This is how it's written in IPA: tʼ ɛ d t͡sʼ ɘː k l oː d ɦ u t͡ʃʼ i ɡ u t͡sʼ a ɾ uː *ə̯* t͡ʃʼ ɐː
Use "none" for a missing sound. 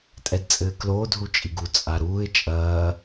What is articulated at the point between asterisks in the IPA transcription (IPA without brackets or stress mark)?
ɪ̯